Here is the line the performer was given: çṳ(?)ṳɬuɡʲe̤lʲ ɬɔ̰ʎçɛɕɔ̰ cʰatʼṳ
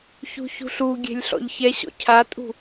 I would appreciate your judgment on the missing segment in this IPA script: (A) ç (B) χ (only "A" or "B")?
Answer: A